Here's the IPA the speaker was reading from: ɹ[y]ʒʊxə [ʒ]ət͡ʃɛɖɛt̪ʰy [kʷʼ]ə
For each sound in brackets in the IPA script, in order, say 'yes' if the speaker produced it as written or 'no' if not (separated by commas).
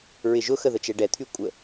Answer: no, no, yes